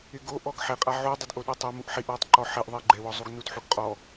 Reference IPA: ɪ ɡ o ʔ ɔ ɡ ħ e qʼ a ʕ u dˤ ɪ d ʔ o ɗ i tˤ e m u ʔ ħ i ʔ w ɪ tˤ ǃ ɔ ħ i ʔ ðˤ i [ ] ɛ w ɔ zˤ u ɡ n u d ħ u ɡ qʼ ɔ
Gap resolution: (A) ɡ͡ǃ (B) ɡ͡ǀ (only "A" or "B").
A